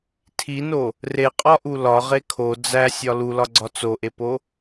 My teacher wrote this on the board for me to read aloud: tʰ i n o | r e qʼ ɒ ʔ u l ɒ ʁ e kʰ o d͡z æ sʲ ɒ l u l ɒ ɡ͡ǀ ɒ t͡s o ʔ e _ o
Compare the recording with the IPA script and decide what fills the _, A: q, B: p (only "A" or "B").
B